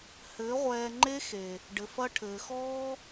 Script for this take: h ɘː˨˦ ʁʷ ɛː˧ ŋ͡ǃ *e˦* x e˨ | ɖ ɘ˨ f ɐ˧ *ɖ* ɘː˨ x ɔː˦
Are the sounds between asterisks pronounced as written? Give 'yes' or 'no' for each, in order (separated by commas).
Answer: yes, no